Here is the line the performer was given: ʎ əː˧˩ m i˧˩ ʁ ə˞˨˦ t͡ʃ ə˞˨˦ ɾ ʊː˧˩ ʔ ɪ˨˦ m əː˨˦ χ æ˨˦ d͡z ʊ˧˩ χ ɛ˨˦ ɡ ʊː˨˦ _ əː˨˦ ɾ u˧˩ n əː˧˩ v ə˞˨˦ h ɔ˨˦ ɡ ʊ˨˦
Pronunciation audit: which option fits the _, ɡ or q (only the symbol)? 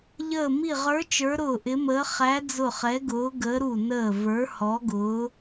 ɡ